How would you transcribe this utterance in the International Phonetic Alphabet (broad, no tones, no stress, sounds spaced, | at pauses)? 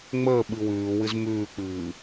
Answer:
ŋ͡m əː ɓ ɨ w ʉː w ɨ z m ʉː k͡p ɨː